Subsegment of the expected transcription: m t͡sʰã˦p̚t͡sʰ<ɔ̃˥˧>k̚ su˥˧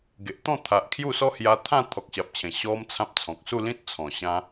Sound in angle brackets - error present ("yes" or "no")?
yes